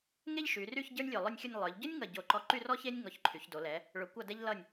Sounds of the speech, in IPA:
ŋe˥ʎʃy˩˧ry˥˧ç ɟə˞˥nʲlʲo˧˩lˠʊ˥˧nʲxʲʊ˥˧nʲ lˠə˞˩˧ʎɟʊ˥nʲŋʌ˧˩ ɟo˧˩ǃɔ˧ ǃy˥˧rɔ˥çe˥nʲ ŋɔ˧˩çǃʰy˩˧çdo˩˧lɛ˩˧ | ɭʊ˩˧kʷʌ˧˩dɛ˧ʎlʌ˧˩nʲ

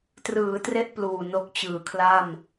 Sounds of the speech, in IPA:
trɯː˩˦tre˦˥ʔ pluː˨˩no˦˥k̚ t͡ɕɯː˨˩kʰla˥˩m

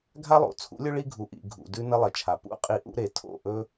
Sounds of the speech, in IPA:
ɡʱa˥lˠo̰˩t͡sʰṵ˩˥lʲɵ˥ ɭi˥ɡʱu˩ ʔḭ˩ ɡʱṵ˩ dʉ˧ nɐ˥lˠɐ˩t͡ʃʰa˩ pṵ˥qʼi˧ ʔṵ˥ɾe˩ tʰo̰˥˩ʔɵ˥

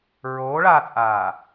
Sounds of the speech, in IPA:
ɹoːɭaːt͡sʼaː

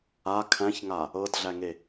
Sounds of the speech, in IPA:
a kʰæ̃çŋa | ɤdɮæŋe

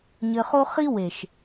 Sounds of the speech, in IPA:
ɲɘ˧χo˦ χi˦we˨ʃ

